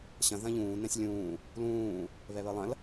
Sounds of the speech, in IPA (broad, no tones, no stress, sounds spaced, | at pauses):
ɕ ɐ̃ ð ɐ̃ ʎ ũː n ɛ̃ sʲ lʲ ũː | l ũː | β ɛ β əː lˠ ɐ̃ l